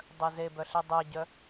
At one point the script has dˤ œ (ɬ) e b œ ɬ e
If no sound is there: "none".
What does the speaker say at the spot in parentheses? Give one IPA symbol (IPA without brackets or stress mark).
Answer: z